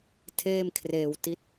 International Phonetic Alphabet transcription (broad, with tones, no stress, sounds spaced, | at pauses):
tʰ eː˥˩ m kʰ r eː˧ w t i˦˥ t̚